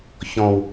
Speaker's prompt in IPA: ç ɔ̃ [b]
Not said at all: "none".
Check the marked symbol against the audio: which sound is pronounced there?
w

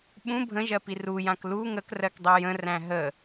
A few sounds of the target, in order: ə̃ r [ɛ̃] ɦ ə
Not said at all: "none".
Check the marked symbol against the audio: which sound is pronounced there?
æ̃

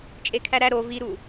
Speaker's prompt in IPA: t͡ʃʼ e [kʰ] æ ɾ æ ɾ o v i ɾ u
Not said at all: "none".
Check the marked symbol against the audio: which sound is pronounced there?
kʰ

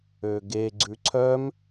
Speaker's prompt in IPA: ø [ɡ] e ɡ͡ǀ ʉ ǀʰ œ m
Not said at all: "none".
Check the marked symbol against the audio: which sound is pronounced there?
ɡ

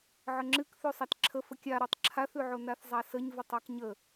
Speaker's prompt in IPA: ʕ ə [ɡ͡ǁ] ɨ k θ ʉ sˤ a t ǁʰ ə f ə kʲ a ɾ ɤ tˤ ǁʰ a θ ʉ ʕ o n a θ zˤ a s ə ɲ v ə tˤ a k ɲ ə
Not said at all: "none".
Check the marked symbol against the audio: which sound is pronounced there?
ŋ͡ǁ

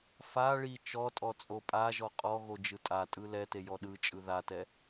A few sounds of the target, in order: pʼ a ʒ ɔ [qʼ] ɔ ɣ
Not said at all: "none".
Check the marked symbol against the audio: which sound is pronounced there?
qʼ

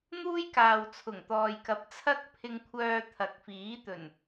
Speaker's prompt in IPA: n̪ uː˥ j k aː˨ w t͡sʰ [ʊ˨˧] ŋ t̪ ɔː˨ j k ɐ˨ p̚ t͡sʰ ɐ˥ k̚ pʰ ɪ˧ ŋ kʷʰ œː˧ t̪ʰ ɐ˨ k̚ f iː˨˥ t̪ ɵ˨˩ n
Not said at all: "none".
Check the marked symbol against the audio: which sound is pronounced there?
ʊ˨˩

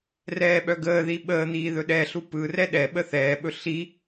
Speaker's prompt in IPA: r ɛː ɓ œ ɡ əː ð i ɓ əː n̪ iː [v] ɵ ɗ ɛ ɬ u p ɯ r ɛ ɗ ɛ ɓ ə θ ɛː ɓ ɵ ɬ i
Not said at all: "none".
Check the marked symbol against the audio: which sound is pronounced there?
ð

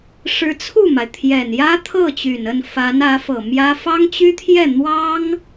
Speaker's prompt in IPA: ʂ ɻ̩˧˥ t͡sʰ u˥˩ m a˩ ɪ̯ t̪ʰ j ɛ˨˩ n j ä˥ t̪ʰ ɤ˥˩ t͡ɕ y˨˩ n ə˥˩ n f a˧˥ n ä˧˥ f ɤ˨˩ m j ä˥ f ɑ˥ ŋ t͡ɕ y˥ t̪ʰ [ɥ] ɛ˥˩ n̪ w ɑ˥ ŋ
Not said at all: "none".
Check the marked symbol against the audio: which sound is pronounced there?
j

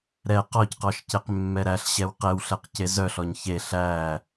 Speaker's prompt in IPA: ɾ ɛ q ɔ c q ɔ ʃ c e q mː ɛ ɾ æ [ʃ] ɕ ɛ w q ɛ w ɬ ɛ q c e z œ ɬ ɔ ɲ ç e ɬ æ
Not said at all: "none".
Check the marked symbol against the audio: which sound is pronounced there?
ɬ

